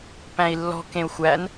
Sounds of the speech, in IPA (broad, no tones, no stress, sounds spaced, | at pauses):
p æ̃ i̯ lː ɔ̤ k ẽ u̯ xʷ æ n